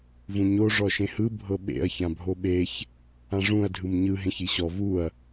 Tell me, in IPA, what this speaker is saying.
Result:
v ũ ɲ o ʐ ɔ ʃ ẽ h ɯ bʱ ɤ ɓ ḛ ɐ̯ ç ã bʱ o ɓ e ç | ã ʐ ũ ɐ̯ dʱ ɯ m ɲ ɯ ɦ ẽ ç i ɕ ɔ v u ɐ̯

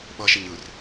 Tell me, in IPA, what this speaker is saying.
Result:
ɓ ʌ ʃ ɛ ɲ ɯ r

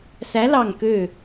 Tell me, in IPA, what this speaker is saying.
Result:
s æ˧˥ l ɑ˦˨ ŋ k ø˦˨

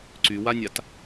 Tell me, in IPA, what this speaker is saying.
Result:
ǀ y w a nʲ a t

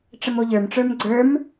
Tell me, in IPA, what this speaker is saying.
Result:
ʈ͡ʂ ə m o ʎ ə˞ m ʈ͡ʂ ə˞ m ɡ͡ǀ ə˞ m

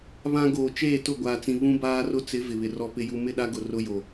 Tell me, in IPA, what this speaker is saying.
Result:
β ã˦ ɡ oː˨ t͡ʃ eː˦˨ t ʊ˦˨ ɡʷ aː˨ t͡s ĩ˨ β ũ˦ b aː˦ r ʊ˦ t͡s ɪ˨˦ v ɪ˨ β ɪ˨ r ɔ˦ p ɪ˨ j u˨ m ɪ˦˨ ɗ a˦ ɡ ʊ˨ r ʊ˦ j o˨

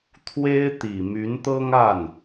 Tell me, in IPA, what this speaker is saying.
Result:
t̪ʰ w e˥ ɪ̯ t̪ i˨˩ m y˧˥ n t̪ ɤ˥ ŋ a˥˩ n

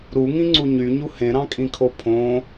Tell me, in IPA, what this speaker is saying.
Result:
ɾ u ŋ ĩ ŋ͡ǀ u ɲ y ɲ u h ẽ ɾ ɑ̃ kʼ ĩ kʰ o pʰ õ

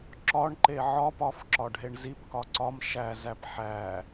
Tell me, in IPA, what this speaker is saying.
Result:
ǁ ɒ ɳ ǃ e ʕ ɒ p ɒ f ǁ ɒ ɖʱ e ɳ z i p k ɒ ǀ ɒ m ʃ æ z æ p ħ æ

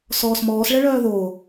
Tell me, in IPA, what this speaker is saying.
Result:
s ɔː s m ɔː s ɭ ɛ ɭ œː ð o

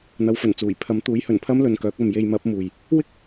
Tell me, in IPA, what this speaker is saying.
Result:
n̪ ɐ˨˧ w f ɵ˨˩ n t͡s uː˨˩ j pʰ ɐ˨˥ m t̪ uː˨˥ j h ɵ˨˩ n pʰ ɐ˥ m l ɵ˨ n k œː˨˥ k̚ ɐ˨ m j e˧ j m ɐ˨˥ p̚ m uː˨ j | w ɪ˥ k̚

